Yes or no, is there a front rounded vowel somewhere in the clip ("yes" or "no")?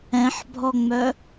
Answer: yes